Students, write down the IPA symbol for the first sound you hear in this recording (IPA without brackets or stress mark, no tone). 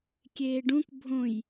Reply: kʲ